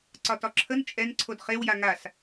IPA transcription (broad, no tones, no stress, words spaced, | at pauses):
ǀɒtɒǁʰən t͡ʃʼɛn ǀʰodχewja ŋas